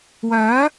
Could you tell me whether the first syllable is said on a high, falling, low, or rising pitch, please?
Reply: rising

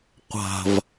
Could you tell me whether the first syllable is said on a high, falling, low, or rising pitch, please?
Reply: low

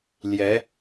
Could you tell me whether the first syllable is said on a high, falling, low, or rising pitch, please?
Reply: rising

